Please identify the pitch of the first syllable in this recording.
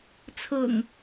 low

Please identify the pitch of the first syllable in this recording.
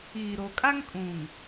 low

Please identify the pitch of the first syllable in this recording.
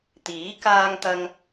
rising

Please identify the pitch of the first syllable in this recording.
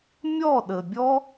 falling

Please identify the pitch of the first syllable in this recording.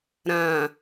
low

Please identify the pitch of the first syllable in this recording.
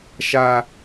high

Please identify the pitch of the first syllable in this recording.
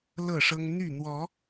falling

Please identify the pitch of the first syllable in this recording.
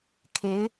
rising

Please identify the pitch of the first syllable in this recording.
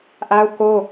high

